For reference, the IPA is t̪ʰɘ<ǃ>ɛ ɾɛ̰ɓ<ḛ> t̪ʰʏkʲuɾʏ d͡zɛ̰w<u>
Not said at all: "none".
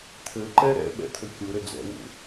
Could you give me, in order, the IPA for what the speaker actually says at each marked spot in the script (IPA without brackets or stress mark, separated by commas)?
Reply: ǃ, ɛ̰, ṵ